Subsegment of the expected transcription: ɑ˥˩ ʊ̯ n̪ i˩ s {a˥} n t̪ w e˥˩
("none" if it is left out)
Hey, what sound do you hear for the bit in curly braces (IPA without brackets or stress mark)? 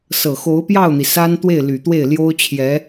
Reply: a˥